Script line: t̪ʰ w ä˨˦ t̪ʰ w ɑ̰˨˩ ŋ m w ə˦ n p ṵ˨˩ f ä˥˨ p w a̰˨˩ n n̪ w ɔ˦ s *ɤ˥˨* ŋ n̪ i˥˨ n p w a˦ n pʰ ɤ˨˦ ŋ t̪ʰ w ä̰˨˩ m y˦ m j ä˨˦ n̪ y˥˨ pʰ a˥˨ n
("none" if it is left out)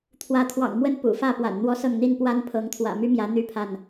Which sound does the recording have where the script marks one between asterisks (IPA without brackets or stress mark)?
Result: ɤ˥˨